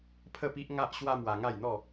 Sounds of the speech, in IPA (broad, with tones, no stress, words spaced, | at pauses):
pʰə˥˧pi˦ʔŋa˦ʔ ɕwa˦mwa˧ŋa˥˧jn̪ɔ˥˧